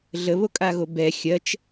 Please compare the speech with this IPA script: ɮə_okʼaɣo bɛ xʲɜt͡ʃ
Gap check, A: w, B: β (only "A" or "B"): B